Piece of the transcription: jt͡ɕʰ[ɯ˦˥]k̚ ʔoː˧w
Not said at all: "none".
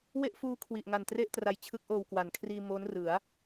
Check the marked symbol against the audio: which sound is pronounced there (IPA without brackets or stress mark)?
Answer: ɯ˦˥